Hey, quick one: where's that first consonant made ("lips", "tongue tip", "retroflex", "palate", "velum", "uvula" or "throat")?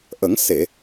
throat